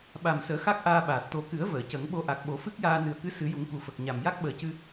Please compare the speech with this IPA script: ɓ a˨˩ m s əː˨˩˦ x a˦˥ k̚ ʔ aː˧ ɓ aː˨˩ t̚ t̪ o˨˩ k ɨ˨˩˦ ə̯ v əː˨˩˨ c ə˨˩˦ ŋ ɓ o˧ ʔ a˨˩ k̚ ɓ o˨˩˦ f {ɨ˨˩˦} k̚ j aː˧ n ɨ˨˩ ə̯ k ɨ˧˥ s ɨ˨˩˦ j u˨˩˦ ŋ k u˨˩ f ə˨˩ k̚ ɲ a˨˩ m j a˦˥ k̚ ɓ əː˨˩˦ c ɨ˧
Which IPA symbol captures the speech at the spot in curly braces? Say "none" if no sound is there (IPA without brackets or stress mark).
ɨ˦˥